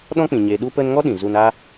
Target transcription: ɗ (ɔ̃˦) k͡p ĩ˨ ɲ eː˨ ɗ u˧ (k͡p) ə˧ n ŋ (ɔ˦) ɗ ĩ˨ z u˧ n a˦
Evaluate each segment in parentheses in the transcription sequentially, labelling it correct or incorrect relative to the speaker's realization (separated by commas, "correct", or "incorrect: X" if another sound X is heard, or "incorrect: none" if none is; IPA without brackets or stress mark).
correct, incorrect: p, correct